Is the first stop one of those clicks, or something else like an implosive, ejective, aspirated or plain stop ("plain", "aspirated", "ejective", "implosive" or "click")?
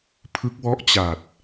aspirated